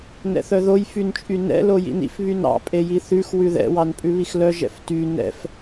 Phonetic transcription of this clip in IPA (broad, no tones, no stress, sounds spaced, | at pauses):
n ɛ̰ θ œ ð o j f y n t͡ʃʼ y n ɛ̰ l o j ḭ n ḭ f β y n ɑ̰ pʼ e j i θ ʉ x w ʉ ð ɛ̰ w ɑ n pʼ ʉ β i x l œ ʒ ɛ̰ f t y n ɛ̰ f